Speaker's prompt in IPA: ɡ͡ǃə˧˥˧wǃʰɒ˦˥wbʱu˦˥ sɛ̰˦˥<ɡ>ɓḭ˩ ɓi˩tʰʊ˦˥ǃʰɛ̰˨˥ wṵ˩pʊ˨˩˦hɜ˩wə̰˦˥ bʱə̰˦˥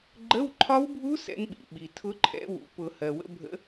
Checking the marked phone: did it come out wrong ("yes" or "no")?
yes